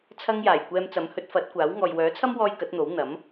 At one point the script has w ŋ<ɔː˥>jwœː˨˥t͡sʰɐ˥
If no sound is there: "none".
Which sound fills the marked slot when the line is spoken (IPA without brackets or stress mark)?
ɔː˨